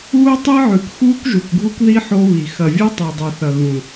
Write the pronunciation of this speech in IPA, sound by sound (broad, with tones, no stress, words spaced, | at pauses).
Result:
uː˦tˤi˦ʕʉ˨k xuː˦kʒu˨kɡʱu˦kði˦ ħo˦βi˨ xɐ˨vʲɐ˦ tˤi˨dˤi˨θɐ˨ɣũ˨